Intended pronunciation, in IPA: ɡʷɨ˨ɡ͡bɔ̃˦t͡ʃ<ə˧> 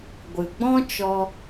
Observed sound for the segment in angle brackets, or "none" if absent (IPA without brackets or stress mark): ɔ˧